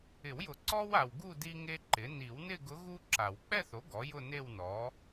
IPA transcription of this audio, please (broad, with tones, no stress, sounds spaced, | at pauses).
ɪ˨˩˦ w j ʊ˨˩˦ ǀ ɔ˥ w a˨ w ɡ u˥˧ d i˥ ŋ e˥ ǃ ɪ˩˥ n i˨˩˦ w n ɪ˥˧ ɡ ʊ˧˥ ɣ u˥ ǁ a˨˩˦ w k͡p ɛ˥˧ θ o˩˥ ɡ ɔ˩˥ j ʊ˥˧ n e˥˧ w n ɔ˩˥